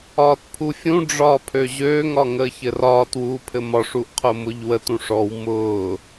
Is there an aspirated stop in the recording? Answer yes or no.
yes